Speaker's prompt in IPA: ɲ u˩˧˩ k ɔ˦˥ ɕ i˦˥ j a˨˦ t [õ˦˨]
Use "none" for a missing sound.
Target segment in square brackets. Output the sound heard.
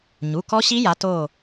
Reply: o˦˨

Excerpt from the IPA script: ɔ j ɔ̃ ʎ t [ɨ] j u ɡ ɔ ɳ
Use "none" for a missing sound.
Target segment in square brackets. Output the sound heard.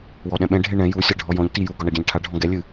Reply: i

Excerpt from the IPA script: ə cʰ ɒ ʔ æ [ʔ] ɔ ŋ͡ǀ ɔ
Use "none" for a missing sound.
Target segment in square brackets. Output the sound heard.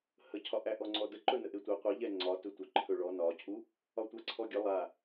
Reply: ʔ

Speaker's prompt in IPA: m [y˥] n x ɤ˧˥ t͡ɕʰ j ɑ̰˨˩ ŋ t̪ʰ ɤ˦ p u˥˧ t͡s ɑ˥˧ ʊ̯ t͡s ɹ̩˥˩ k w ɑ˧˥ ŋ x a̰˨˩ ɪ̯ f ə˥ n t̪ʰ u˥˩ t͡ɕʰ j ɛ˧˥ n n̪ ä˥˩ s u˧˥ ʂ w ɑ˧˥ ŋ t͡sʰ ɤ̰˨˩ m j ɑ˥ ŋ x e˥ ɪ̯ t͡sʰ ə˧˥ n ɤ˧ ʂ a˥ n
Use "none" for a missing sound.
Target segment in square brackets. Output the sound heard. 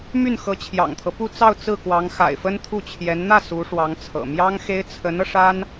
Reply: y˥˩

